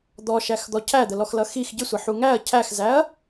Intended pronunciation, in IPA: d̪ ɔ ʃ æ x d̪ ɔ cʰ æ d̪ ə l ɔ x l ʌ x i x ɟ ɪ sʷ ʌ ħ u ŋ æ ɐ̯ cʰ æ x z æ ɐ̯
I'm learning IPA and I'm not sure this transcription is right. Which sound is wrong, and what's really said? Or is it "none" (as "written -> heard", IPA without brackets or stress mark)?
none